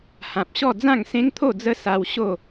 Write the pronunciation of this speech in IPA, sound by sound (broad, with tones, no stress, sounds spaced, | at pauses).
h ã˨ p̚ ɕ ɔ˥˧ d͡z ã˥˧ ŋ s ẽ˦ ŋ t̪ʰ o˥˧ d͡z ə˦ s a˧ w ɕ o˥˧